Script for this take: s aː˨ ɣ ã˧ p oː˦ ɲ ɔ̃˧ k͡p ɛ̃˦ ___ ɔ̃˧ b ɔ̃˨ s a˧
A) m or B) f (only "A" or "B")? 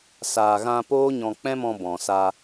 A